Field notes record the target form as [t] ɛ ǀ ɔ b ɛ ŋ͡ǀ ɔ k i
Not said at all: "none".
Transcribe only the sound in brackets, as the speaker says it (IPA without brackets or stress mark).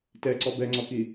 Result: t